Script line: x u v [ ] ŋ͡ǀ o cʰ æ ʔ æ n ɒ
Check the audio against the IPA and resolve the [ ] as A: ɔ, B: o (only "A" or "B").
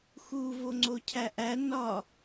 B